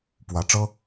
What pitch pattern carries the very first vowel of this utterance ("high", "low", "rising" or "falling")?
rising